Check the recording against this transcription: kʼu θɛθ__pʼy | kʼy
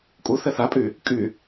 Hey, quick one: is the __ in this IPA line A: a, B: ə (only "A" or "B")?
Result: A